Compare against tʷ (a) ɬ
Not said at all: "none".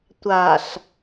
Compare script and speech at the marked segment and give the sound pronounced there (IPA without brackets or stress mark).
a